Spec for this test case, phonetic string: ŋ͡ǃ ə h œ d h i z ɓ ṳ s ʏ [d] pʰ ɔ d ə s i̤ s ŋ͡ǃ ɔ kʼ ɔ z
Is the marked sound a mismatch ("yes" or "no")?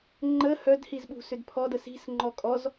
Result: no